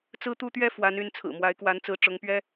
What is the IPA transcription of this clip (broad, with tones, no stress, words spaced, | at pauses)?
t͡sɹ̩˥t̪u˥t̪ɥɛ˥ fwa˧˥n y˧˥n t͡sʰɹ̩˨˩mwa˧˥ɪ̯kwa˧˥n t͡sɹ̩˧˥ʈ͡ʂʊ˧˥ŋpɥɛ˥